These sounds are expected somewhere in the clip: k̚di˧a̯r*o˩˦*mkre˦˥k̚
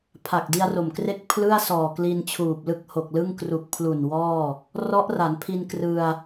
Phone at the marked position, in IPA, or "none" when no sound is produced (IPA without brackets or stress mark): o˨˩